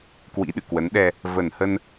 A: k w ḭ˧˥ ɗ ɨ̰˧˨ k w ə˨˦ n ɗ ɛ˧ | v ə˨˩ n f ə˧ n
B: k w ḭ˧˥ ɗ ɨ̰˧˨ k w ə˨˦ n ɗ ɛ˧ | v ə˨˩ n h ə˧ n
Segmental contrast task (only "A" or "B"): B